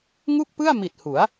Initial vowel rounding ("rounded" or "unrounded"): rounded